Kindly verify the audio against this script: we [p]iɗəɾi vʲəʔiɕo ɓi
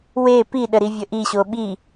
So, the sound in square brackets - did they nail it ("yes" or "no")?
yes